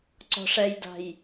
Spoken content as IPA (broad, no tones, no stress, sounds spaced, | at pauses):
ǀ ɔ̤ ʂ ɛ j d a̤ j